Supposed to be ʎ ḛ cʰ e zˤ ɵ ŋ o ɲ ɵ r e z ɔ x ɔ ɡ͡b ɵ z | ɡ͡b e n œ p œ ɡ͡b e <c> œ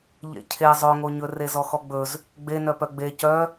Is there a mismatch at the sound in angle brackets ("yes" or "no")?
no